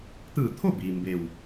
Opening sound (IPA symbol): t̪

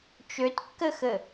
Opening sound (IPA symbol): t͡ʃ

